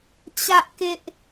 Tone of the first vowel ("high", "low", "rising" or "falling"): high